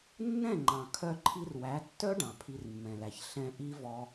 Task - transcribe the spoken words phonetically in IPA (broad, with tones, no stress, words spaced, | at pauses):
nːɛ̃˦˨ŋ͡ǃɑ̃˨ kʰœ˧ǃʰi˧r wæ˨˦tːœ˦ ɖɑ̃˨pʰi˧rmːɛ̃˨læ˨ç ɬɛ̃˧ ʔi˦vɔ˧